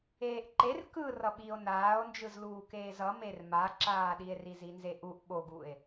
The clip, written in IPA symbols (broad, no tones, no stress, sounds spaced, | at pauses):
eː ʔ ǃ e r k ɯ r ʌ ɓ i o̯ n aː o̯ n d͡ʒ ɯ z l uː k eː z ʌ m e r m a ǁ aː ɗ i e̯ r i z i n z e ʔ u ʔ ɓ o ɡ u e̯